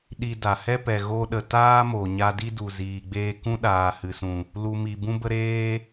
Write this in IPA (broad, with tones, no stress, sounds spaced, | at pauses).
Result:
ɗ i˧ d a˨ h ɛ˦ p ɛ˨ ɣ o˧ ɗ ə˨ t aː˦ m o˨ ɲ a˧ d i˦ d u˨ z iː˨ ɡ͡b eː˧ k ũ˦ ɗ aː˨ h ɨ˨ s ũ˨ | l u˨ m i˨ b ũ˦ b ə˦ ɾ eː˦